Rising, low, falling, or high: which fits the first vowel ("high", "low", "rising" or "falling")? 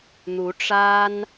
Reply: rising